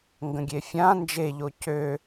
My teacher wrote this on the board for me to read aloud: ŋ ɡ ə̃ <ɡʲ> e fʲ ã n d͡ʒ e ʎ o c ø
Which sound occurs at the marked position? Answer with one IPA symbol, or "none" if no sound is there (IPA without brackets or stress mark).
ɡʲ